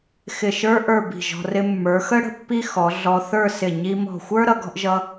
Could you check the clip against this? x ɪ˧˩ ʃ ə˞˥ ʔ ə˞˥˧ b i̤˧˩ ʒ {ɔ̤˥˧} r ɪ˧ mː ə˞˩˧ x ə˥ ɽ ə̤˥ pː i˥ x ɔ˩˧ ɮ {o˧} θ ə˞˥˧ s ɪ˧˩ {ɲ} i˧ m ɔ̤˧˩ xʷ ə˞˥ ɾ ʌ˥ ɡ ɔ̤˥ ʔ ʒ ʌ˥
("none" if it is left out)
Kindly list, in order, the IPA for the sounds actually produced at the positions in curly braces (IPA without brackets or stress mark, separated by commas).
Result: ɔ̤˧, ɔ˧, ɲ